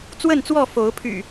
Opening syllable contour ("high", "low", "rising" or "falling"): falling